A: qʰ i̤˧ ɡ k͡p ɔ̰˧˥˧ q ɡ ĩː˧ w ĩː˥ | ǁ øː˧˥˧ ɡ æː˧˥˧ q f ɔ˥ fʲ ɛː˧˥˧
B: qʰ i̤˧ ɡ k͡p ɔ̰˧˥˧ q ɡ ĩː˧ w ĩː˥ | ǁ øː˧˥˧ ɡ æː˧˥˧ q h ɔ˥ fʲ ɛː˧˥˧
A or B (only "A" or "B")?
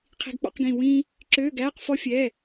A